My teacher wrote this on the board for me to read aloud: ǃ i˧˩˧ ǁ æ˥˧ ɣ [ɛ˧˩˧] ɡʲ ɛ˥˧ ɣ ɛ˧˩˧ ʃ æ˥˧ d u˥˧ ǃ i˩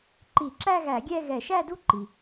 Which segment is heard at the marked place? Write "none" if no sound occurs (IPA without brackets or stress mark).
æ˧˩˧